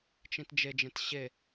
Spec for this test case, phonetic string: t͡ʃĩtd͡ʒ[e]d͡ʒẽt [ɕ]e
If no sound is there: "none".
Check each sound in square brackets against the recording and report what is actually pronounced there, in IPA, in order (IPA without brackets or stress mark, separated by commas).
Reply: e, ɕ